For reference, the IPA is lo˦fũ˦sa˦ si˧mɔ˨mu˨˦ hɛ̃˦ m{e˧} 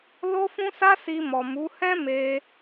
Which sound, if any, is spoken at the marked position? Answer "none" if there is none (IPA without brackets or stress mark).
e˧